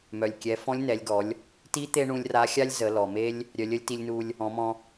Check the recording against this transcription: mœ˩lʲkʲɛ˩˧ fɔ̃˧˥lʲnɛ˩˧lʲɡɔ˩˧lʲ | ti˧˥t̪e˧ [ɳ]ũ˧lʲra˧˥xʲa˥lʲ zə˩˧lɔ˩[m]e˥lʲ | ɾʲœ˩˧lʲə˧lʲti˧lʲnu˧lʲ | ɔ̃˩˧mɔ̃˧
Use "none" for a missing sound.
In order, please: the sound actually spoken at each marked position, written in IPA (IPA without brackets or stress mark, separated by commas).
ɳ, m